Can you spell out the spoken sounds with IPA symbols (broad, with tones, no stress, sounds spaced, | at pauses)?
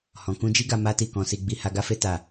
h ɔ̃˨ k ũ˧ d͡ʒ i˦ ɡ a˧ m a˦ t i˦˨ k ɔ̃˧ s i˧ ɡ͡b i˧ h a˧ ɡ a˦ f e˦ t a˦˨